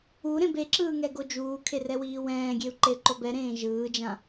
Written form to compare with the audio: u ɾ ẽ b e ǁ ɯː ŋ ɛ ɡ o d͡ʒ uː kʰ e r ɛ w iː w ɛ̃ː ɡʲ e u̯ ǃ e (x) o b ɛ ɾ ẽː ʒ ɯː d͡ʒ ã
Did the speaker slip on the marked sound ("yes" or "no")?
yes